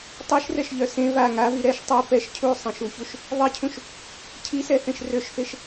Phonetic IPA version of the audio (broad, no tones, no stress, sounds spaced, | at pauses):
tˤ i ʃ r ɛ ʃ ʎ œ s ẽ v a ŋ a v i ɾ ɛ ʃ tˤ œ p ɛ ʃ cʰ u sˤ ẽ ʃ u ç u ʃ | ðˤ i cʰ ũ ʃ | cʰ i s ɛ θ ẽ ʃ r ø ʃ f e ʃ